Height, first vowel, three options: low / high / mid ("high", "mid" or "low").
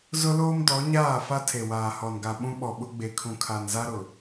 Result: high